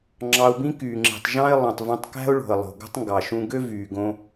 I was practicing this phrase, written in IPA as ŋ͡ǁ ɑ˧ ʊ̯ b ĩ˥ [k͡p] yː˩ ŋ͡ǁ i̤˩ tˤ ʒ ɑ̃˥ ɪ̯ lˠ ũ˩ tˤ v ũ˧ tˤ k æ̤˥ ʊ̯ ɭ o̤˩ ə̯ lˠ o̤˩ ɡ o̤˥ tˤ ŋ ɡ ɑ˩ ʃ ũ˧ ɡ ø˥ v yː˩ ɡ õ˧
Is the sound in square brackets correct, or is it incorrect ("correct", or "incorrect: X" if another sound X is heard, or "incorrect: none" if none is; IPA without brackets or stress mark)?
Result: incorrect: k